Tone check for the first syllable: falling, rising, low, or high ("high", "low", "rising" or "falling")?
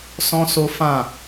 high